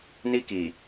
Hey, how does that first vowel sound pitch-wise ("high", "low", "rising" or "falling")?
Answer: high